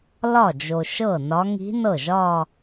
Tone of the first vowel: falling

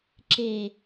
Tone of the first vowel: low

